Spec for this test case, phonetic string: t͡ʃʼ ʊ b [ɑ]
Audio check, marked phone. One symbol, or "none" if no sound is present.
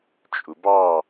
ɑ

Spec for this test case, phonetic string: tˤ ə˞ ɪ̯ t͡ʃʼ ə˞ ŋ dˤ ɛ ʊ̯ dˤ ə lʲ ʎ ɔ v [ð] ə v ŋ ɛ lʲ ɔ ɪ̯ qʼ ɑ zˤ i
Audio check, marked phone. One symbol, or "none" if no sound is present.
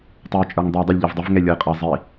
dˤ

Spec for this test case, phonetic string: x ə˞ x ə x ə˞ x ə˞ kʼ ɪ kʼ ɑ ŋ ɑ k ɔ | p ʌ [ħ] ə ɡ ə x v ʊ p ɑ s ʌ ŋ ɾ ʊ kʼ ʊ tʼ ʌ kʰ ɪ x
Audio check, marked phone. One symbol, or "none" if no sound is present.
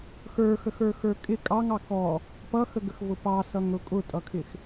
x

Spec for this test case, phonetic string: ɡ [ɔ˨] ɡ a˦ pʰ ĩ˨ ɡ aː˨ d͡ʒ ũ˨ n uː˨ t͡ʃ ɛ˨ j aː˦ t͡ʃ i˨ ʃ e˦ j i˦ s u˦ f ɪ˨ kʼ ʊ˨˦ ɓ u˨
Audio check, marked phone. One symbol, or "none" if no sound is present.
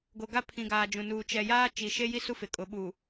o˨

